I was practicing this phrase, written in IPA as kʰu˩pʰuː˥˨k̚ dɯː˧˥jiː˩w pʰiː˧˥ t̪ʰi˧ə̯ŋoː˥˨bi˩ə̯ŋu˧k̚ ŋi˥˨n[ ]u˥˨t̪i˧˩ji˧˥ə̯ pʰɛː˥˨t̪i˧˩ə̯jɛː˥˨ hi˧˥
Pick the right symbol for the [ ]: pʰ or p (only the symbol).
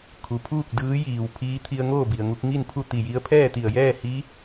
pʰ